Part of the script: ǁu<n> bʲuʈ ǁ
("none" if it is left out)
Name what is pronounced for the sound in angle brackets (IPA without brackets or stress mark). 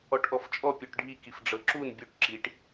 n